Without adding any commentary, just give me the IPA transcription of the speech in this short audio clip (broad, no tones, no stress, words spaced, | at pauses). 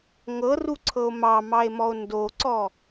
ŋɤruǀʰɤo̯ mɑmɑe̯mɔo̯ ndoǀɔ